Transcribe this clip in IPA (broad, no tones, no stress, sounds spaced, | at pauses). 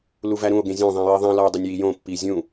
l u v æ ɾ ũ o̯ ɡ ẽ zʲ õ ðˤ ĩ j i ðˤ ĩ l ɒ o̯ dˤ u nʲ j i j õ pː i zʲ ũ